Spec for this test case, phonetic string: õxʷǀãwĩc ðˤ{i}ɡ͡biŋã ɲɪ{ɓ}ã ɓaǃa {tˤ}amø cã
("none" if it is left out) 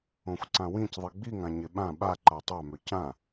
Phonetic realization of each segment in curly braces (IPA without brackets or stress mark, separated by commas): i, ɓ, tˤ